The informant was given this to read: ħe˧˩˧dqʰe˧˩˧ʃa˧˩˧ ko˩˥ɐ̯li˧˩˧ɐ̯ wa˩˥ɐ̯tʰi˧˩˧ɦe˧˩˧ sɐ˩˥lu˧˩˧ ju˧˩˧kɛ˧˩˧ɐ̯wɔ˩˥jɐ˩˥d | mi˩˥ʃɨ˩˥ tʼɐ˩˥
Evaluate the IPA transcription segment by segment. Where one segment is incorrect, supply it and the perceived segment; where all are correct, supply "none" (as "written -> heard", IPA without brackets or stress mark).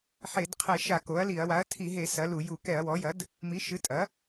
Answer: none